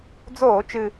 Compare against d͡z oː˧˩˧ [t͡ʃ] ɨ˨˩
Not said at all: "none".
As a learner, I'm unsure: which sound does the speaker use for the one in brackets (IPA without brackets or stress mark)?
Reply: t͡ʃ